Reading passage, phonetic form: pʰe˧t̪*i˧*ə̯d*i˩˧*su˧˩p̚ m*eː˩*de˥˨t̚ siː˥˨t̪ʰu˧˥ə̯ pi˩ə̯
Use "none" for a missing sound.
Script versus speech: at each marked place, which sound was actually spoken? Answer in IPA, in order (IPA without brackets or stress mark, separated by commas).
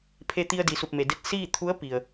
i˧, i˩, e˩